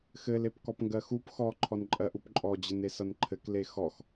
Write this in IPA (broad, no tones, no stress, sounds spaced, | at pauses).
x ɘ l e p k ɔ p ŋ ɡ ɜ x u p x ɔ ǃʰ ɔ n ǃʼ ɜ ʔ u p ǃʼ ɔ d͡ʑ ɘ n e s ʌ n ǃʰ ɘ k l e x ɔ x